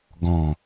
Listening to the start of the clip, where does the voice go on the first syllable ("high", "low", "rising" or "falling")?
low